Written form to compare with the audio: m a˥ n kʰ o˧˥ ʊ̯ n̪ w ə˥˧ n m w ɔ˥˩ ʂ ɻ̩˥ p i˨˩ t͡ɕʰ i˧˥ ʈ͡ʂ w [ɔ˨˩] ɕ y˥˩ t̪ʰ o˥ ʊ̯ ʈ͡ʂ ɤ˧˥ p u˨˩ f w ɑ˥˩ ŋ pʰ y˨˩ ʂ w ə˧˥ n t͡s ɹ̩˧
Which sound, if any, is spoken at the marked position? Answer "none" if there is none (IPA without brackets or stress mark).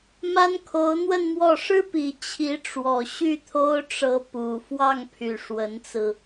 ɔ˨˩